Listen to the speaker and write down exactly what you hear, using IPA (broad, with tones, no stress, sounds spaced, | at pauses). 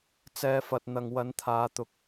t͡s ɛː˨˧ f ɐ˨ t̚ n̪ ɐ˨ ŋ w ɐ˨˥ n t̪ʰ aː˨˧ t̪ ʊ˨ k̚